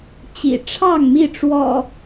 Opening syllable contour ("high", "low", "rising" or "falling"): low